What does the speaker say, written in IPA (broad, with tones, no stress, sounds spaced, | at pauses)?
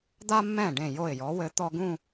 d̪ a˧ mː ɛ̃˧˩ ɖ ẽ˧˩ j o˧˩ ɪ̯ j ɔ˩˧ w ɘ˩˧ t̪ ɔ˧ ɡ ũ˥˧